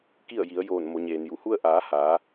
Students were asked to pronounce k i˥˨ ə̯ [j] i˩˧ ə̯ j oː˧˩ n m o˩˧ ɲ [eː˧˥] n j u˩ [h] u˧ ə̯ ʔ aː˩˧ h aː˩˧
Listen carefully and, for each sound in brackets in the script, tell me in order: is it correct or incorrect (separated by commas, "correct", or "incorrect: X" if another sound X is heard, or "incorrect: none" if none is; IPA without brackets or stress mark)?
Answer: correct, incorrect: eː˩, correct